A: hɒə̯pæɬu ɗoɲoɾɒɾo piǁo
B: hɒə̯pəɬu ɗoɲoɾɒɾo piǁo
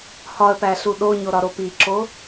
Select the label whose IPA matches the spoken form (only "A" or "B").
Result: A